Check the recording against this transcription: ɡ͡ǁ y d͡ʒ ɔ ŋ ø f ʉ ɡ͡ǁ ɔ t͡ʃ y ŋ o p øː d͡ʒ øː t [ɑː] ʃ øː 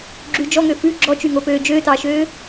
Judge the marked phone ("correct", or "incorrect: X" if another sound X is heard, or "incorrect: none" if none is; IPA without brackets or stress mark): correct